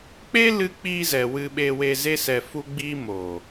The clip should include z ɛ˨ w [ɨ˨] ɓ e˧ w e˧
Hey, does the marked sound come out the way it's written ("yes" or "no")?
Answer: no